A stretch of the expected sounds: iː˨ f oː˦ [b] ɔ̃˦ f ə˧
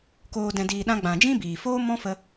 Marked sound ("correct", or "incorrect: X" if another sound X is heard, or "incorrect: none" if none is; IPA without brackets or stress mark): incorrect: m